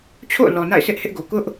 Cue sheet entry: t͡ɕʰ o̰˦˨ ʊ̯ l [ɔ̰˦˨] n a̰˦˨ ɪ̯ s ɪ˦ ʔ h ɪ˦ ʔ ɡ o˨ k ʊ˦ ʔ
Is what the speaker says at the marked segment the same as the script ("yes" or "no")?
no